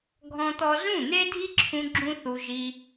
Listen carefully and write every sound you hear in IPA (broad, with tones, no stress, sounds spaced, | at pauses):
ɡʱ ɔ̃˦ t̪ ɔ˦ z ũ˦˨ n̪ e˦ dʱ i˦ ǁʰ ũ˦ ɡ͡ǁ ũ˦ θ u˧ ʒ i˧